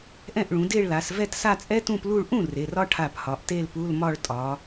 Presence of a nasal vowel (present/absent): present